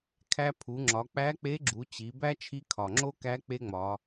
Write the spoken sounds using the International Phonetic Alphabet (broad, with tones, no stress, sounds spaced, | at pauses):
kʰ æ˧ pʰ u˩˧ ŋ͡ǁ ɒ˩˧ k͡p æ˧˥ k͡p e˧˥ ɡ͡ǁ u˩˧ t͡ɕ i˩˧ b æ˥ t͡ʃʰ i˧˥ kʰ ɒ˩ ŋ͡ǁ o˥ k æ˧˥ k͡p e˥ ŋ͡m ɒ˩˧